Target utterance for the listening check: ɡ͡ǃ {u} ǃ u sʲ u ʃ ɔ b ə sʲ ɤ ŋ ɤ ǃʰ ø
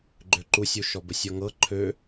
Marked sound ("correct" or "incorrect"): incorrect